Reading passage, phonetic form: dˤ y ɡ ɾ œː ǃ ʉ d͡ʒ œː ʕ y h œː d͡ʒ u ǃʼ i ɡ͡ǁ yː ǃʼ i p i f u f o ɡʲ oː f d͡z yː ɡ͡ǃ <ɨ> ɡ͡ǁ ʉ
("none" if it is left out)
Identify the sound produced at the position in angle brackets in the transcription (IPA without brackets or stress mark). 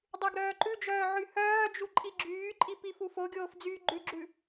ʉ